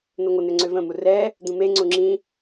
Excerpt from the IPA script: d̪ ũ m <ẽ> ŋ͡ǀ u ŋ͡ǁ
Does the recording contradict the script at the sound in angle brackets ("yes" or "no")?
yes